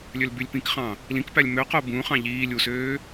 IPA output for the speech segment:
lʲølbylʲpĩkχɑ̃ | lĩkpælʲ møqo bũːχɑ̃ ʎiː lʲusøː

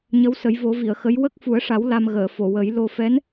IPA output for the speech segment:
ɲə˧˥wsə˨˩˦jvo˨˩˦ vi˨˩˨ə̯xə˧˥j wə˦˥k̚fu˨˩˦ə̯ʂa˨˩˦w la˧mɣəː˨˩˨ fo˨˩˨wə˨˩˦jlo˧ fɛ˧˥n

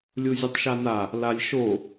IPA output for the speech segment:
lʲuzʲɨtˤʃana | lalʲʃo

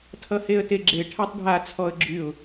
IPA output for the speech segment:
tʰʌheə̯teɡ͡ǁe ʈʰatˤɖʱa t͡sʰɔə̯ɡ͡ǁyʊ̯

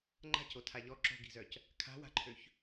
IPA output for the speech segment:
ŋ͡ǃa̤co tʰaʎɔ ǁo̤ɡi̤zœc | kʰa̤wa̤ǃʰøç

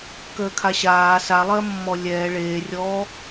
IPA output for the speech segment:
kəːkʰaɕaː salˠɜmːɔ lʲɛː ɭeːrʲɔː

